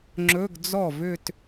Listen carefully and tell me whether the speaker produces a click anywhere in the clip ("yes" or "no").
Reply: yes